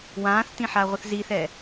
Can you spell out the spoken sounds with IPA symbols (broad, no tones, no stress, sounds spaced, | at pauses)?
w ãː θ t ĩ ħ a ʁʷ ɘ θ z i θ ɛ